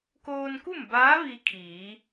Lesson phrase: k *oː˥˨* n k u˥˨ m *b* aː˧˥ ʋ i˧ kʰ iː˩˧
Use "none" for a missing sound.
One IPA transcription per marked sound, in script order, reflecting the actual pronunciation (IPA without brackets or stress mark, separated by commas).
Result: oː˧, b